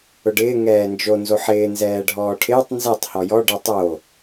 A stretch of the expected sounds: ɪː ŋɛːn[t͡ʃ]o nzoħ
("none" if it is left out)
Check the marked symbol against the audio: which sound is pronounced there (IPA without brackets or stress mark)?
d͡ʒ